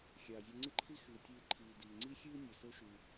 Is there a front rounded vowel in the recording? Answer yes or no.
no